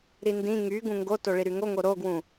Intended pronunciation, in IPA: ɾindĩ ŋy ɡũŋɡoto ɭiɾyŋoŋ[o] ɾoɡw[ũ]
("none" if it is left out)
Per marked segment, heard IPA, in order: o, ũ

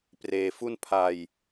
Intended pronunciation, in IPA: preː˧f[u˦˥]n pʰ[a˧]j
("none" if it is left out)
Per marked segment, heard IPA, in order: u˥˩, a˧

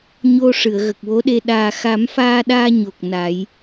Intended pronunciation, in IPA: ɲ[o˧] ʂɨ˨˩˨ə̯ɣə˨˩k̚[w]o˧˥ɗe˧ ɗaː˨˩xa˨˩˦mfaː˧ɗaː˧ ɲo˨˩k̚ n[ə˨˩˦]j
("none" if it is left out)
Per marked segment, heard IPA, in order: o˧, w, a˨˩˦

